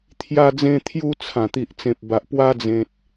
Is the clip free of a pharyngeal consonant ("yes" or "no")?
yes